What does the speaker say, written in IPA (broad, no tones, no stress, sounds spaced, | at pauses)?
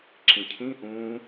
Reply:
ǁ ĩ cʰ ĩ ʔ ũː